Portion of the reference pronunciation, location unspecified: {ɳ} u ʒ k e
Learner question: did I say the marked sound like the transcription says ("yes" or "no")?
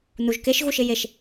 no